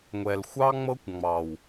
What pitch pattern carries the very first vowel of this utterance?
low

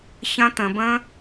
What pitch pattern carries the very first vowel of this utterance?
high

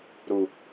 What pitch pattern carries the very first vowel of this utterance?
low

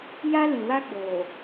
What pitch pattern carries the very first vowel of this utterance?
high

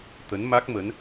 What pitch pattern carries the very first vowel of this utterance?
rising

